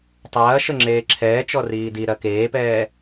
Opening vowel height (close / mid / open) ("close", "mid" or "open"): open